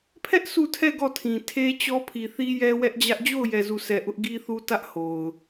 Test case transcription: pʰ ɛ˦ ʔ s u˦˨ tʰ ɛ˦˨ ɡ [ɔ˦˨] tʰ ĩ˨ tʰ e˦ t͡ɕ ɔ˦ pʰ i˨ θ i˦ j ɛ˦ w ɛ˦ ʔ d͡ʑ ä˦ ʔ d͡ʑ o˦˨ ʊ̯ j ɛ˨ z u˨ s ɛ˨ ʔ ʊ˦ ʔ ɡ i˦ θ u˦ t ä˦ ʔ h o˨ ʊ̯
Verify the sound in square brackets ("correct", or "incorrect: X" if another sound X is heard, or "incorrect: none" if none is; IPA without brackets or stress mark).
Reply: correct